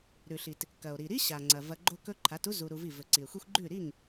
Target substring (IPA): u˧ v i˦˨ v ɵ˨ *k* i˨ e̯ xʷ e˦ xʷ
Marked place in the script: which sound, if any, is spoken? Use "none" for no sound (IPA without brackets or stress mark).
ǀ